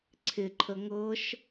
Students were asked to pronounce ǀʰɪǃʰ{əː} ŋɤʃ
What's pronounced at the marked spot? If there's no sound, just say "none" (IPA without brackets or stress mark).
ə